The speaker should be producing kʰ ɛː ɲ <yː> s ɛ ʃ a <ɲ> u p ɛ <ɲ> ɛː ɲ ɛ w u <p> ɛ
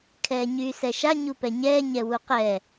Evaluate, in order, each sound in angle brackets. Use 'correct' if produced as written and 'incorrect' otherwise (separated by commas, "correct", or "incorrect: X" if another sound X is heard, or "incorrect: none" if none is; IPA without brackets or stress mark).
correct, correct, correct, incorrect: q